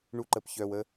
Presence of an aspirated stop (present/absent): absent